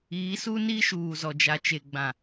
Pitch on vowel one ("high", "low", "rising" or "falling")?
rising